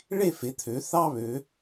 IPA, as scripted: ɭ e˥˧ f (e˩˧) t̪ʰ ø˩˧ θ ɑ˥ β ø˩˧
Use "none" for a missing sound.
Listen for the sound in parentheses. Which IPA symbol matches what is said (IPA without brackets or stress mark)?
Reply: e˩˧